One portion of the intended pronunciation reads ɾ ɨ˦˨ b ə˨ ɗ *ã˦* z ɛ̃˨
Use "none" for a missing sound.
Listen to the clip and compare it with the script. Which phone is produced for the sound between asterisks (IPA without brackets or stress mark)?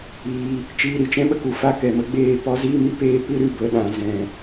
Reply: ã˨